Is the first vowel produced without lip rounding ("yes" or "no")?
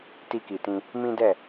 yes